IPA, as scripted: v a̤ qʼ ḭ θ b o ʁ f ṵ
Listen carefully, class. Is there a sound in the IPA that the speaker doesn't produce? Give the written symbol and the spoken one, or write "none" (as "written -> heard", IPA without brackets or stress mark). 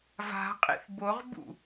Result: f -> b